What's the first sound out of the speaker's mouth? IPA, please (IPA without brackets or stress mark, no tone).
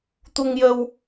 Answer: t̪